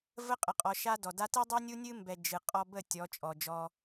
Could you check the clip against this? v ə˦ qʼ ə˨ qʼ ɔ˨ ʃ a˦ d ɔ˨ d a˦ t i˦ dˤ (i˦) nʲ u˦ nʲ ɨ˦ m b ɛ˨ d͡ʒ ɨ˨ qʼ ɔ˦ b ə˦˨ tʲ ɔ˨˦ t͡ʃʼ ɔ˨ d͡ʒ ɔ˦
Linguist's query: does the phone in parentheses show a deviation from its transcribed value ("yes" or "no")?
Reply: no